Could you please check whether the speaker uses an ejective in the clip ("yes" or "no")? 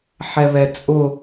yes